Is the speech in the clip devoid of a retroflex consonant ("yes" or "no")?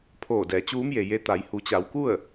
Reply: yes